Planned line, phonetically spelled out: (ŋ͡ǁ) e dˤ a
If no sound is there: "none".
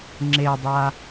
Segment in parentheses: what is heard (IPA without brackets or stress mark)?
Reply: ŋ͡ǁ